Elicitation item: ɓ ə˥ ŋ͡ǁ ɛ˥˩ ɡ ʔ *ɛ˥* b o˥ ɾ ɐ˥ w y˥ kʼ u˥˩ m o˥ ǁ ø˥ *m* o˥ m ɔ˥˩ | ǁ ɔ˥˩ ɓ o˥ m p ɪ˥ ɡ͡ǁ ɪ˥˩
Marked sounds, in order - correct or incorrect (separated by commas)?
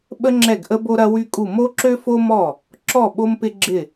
incorrect, incorrect